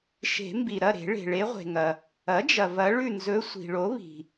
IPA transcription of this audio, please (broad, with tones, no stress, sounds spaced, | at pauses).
ʃ e̤˨˩˦ m b i˩ ɾ ɐ˥˨ ɾ e̤˨˩˦ ɭ e̤˩ ɭ e˧˥ ʁʷ e̤˩ ŋ ɐ˩ | ɐ˩˥ d͡ʒ ɐ˩ v ɐ˧˥ ɭ ʉ˥˨ n z ɵ˧˥ sʷ i̤˩ ɭ o˩˥ β i̤˩